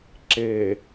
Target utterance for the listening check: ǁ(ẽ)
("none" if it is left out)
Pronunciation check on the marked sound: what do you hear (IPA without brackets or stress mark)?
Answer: e